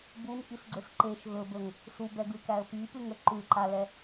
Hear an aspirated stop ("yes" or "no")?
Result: no